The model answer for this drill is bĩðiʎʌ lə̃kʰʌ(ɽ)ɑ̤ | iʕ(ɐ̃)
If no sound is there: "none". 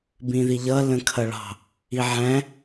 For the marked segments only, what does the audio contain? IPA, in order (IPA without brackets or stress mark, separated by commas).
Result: ɭ, æ̃